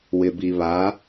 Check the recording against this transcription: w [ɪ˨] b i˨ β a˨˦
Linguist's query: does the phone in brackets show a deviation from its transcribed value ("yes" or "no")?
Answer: no